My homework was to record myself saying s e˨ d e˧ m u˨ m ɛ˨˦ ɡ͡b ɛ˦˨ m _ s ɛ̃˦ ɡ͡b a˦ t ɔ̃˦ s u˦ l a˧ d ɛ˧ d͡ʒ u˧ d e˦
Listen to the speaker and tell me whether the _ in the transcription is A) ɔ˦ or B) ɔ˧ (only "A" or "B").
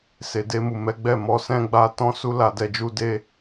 B